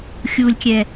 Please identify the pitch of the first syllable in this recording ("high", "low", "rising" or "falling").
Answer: low